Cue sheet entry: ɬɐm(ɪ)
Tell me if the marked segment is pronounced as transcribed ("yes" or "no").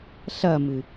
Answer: no